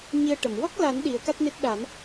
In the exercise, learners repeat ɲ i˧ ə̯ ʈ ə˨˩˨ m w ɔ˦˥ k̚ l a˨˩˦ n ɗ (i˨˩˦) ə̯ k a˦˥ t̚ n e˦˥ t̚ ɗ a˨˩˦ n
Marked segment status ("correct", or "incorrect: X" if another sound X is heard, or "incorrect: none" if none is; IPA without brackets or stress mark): correct